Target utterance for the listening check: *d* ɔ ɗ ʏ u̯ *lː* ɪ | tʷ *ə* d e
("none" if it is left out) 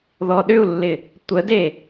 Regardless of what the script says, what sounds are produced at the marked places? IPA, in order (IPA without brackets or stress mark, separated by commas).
ð, lː, ə